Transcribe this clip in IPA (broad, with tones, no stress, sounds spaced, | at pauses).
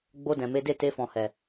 ɡ͡b o˧ d ɛ̃˨ m e˨˦ d e˦˨ t e˧ f ɔ̃˨ h ɛ˨